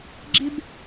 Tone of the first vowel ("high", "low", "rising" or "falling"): high